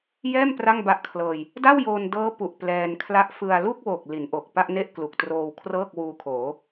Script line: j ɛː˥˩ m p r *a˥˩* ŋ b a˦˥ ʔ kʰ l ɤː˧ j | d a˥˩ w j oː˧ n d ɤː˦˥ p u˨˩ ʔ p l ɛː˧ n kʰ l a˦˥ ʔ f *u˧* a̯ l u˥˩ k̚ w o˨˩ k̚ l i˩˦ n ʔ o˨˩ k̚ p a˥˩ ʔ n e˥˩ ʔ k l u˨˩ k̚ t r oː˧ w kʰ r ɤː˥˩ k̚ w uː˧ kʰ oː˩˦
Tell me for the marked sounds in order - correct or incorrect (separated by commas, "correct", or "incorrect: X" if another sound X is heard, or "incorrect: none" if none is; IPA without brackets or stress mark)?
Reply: correct, incorrect: ɯ˧